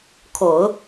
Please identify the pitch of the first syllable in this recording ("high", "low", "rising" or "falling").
low